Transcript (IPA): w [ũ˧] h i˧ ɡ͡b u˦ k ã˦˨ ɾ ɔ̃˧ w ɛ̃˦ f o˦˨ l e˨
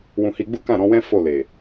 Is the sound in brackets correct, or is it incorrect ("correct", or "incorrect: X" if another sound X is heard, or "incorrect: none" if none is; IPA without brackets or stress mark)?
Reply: correct